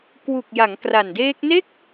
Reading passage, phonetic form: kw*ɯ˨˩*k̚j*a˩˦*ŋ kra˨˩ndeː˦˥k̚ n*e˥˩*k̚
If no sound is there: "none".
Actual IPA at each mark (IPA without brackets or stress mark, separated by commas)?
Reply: u˨˩, a˩˦, e˥˩